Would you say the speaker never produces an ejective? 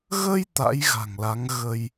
yes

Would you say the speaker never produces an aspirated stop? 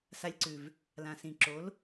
yes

